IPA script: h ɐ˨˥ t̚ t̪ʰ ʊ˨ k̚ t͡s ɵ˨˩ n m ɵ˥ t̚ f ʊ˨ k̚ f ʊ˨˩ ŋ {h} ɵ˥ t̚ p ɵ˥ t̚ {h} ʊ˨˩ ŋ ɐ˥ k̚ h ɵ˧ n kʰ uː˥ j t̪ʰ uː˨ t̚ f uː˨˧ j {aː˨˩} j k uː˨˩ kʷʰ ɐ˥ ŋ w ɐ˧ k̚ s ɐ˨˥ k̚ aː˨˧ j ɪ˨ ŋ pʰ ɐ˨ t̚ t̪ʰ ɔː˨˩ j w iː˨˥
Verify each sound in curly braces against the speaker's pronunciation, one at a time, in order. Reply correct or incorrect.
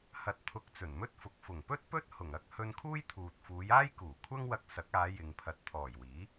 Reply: incorrect: p, correct, incorrect: aː˥

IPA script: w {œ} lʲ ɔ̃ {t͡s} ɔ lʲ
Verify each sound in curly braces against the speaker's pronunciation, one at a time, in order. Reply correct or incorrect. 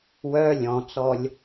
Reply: correct, correct

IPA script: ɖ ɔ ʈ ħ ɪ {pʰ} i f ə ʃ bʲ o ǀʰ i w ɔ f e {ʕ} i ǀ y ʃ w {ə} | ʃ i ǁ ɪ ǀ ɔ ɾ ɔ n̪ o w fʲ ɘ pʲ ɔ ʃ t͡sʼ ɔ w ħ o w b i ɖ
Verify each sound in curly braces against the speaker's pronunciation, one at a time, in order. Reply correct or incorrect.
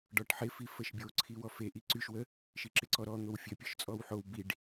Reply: incorrect: f, incorrect: ʔ, correct

